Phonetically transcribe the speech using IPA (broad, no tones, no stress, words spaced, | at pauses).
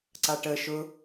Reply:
ǀaʈə ʃʊ